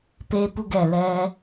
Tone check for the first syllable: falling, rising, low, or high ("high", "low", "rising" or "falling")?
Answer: high